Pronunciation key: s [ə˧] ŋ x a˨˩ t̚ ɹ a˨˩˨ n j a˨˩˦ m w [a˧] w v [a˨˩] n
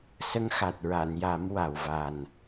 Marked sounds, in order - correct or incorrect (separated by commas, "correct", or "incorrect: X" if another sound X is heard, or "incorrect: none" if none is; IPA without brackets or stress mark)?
incorrect: ə˧˥, incorrect: a˨˩, correct